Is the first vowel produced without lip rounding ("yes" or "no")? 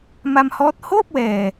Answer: yes